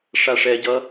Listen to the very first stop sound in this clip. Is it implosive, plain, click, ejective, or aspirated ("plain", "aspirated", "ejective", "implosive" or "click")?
plain